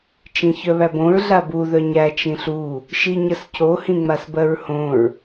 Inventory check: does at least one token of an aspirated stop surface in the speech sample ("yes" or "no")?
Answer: no